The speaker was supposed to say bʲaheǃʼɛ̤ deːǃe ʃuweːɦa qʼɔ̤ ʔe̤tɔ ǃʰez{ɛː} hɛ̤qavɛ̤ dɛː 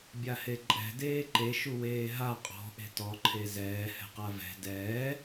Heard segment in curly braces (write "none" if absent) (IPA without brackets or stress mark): ɛː